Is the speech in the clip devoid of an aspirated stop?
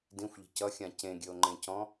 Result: yes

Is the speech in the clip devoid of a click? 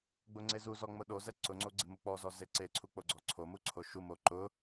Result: no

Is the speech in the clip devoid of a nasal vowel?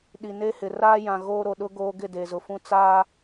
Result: no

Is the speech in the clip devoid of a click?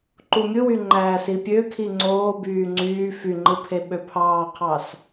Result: no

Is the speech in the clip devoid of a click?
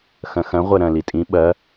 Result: yes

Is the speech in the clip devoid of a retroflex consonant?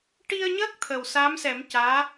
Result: no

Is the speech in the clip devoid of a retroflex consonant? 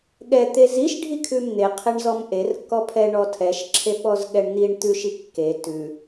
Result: no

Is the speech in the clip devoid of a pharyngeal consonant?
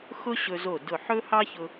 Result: no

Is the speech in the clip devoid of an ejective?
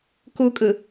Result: no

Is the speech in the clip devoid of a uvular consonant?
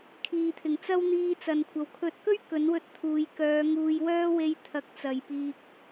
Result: yes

